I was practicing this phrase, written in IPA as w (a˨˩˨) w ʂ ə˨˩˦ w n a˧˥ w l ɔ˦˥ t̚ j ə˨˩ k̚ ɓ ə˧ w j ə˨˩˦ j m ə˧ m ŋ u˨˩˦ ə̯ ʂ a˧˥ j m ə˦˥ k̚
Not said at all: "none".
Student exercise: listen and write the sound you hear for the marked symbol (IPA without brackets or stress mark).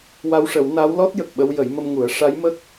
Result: a˧